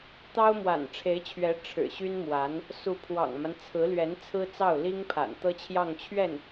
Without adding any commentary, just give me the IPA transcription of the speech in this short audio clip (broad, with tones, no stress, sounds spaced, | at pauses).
t̪ ɑ˥ ʊ̯ m w a̰˨˩ n ʈ͡ʂʰ e˧˥ ɪ̯ t͡ɕʰ ɥ ɛ˧˥ ʈ͡ʂʰ ɻ̩˨˩ ɕ y˥ n m w a˧˥ n | s u˧˥ pʰ w ɑ̰˨˩ ŋ m a˦ n t͡sʰ ɹ̩˧˥ l ɥ ɛ˧˥ n t͡sʰ ɹ̩˥ t͡s ɑ˥˩ ʊ̯ l i˥ ŋ pʰ a̰˨˩ n t̪ ɤ˥ t͡ɕʰ j ɑ˥˧ ŋ t͡ɕʰ ɥ ɛ˥˩ n